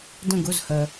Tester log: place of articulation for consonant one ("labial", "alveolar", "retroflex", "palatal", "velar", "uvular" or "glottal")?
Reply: alveolar